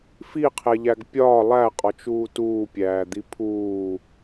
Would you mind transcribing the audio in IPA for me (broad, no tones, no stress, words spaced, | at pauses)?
fiqʰeʎæɡ pʲɒː lˠæqʼɒt͡ʃuː tuːpʲæːd̪i pʰuː